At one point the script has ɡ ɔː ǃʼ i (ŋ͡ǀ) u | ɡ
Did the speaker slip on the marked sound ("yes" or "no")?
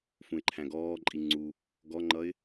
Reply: no